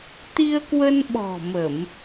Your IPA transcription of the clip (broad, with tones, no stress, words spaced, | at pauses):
t̪i˧ə̯kwə˧nɓɔ̤˨˩ mə˧˩˨m